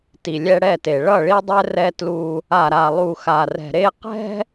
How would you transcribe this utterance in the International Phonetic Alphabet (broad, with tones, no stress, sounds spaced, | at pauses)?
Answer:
t i˨ lʲ ɛ˦ ɽ ɛ˦˨ t e˨ ɭ ʌ˦˨ ɭ i˦ dˤ ɛ˦ r ɛ˦ t l u˦ | a˨ ɾ a˨ lˠ u˨ x a˨ r ɛ̤˨ ɾ e˦ q ɛ̤˦